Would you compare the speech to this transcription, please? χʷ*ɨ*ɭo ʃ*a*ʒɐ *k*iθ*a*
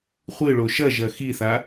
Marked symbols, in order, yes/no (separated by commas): yes, no, no, yes